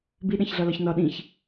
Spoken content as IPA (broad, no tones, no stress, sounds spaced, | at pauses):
b i ɗ æ̃ ç ɮ ɒ l ɒ ç n ɒ ɗ ĩ ç